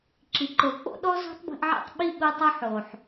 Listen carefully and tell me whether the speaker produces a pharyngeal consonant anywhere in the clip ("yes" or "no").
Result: yes